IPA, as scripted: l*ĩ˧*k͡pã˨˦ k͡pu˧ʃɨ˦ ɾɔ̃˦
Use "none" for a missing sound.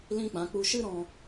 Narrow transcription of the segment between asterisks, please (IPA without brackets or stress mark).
ĩ˦